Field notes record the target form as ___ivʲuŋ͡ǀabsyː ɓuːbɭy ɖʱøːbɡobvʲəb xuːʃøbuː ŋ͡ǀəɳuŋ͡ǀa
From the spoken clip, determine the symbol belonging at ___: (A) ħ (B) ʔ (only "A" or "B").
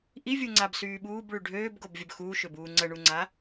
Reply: B